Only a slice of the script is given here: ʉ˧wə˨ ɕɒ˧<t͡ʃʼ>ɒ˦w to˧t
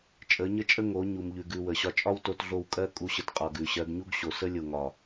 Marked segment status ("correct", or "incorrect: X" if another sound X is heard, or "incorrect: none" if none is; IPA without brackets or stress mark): correct